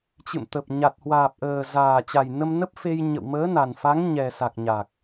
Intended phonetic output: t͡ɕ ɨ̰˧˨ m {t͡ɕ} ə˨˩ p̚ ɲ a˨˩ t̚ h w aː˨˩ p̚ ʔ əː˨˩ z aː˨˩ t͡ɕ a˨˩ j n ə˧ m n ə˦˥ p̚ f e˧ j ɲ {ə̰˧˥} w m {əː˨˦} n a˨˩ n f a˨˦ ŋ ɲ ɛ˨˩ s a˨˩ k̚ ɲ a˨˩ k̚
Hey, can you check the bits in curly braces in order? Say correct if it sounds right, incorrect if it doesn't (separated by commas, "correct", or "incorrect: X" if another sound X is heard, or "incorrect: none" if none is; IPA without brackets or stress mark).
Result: incorrect: t̪, incorrect: ə̰˧˨, correct